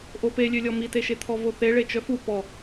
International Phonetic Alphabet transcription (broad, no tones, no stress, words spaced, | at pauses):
ʔopelʲølʲɔ miteʃet̪ʰɔ voθe ɭet͡ʃœfu pɔ